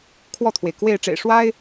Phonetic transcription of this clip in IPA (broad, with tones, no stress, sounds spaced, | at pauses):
kʰ w ɔ˥˩ t̪ʰ w e˩ ɪ̯ k w e˥˩ ɪ̯ ʈ͡ʂ ḛ˨˩ ɪ̯ ʂ w a˥ ɪ̯